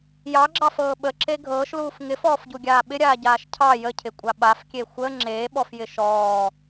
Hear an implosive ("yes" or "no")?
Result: yes